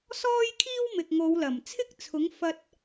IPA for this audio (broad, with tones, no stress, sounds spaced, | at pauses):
s ɔː˥ j kʰ iː˥ w m ɪ˨ k̚ ŋ o˨˧ w l ɐ˨˩ m t͡sʰ ɪ˥ k̚ t͡sʰ ʊ˨˥ ŋ f ɐ˥ t̚